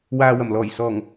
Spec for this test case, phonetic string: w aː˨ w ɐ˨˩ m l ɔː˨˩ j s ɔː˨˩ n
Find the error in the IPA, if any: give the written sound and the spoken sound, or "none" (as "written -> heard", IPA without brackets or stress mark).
n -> ŋ